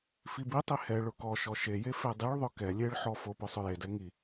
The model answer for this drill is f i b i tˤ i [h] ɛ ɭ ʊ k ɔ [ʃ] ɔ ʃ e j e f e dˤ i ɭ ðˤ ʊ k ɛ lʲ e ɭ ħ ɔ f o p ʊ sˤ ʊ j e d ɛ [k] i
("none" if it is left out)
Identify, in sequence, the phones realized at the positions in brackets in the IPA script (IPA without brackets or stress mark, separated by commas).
h, ʃ, ŋ